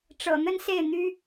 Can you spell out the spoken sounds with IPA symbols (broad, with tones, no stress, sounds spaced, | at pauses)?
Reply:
ʈ͡ʂ ɤ̰˨˩ n̪ ə˥ n s e˥˩ ɪ̯ n̪ y˥